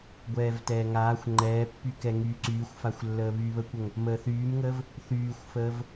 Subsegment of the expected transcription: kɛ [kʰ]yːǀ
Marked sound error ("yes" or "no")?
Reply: yes